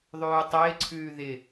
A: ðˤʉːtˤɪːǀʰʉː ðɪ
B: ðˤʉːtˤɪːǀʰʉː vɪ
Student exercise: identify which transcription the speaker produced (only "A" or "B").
A